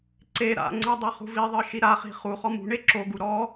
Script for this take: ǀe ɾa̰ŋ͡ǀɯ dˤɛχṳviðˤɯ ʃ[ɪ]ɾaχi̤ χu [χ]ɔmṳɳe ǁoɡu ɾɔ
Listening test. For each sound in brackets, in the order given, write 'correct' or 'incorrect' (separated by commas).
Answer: incorrect, correct